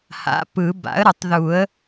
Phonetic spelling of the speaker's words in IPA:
h a̰˩˥ p ɯ˨˩˦ b a̰˩˥ ə̯ ɾ ə˨˩˦ tˤ ð u˨˩˦ ə̯

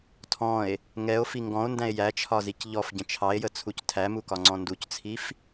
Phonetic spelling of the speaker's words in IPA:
tʰ ɔ̃ e̯ | ŋ ɛ o̯ f i ŋ ɡ ɔ̃ o̯ n d æ̃ e̯ j æ t͡ʃʰ ɒ z i c ʎ ɔ f ɟ ə̃ t͡ʃʰ ɑ e̯ j ə t͡sʰ u c tʰ æ m u k ɒ ŋ͡ǀ ɔ̃ n d u c t͡sʰ i f

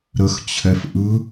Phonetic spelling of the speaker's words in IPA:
ɾ ə x t͡ɕʰ ɛ f ʔ ɯ

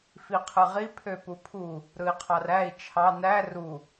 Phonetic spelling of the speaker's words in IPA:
f i qʰ ɯ ʁ i pʰ ø p u pʰ u | ɾ ɯ i̯ qʰ ɑ r æ i̯ t͡ʃʰ ɑ n æ r u

